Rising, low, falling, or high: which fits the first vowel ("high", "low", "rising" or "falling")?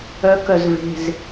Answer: high